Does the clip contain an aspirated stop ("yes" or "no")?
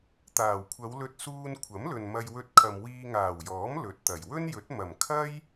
yes